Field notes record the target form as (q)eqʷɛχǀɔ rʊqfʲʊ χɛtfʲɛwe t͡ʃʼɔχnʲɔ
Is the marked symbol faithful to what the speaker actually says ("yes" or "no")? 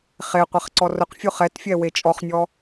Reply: no